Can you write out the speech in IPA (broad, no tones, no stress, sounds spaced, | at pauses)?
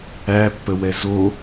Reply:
æ pː ə w ɛ z o